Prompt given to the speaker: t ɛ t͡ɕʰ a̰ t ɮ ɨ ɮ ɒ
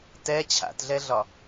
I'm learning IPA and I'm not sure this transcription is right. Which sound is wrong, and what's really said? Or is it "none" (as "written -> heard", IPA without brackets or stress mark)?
ɨ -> ɛ